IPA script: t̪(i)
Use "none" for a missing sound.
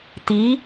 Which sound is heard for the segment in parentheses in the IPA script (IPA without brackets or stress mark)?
i